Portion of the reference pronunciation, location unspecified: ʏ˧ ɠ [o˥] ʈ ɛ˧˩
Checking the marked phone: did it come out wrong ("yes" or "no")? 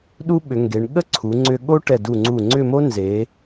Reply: no